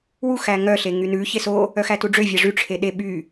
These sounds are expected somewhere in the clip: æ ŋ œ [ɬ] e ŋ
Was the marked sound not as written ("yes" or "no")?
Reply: no